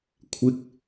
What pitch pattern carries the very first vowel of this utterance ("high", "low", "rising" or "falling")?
low